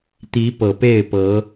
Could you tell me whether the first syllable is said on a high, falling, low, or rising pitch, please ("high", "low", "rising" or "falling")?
rising